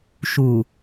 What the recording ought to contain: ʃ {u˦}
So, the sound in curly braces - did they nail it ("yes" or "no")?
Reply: no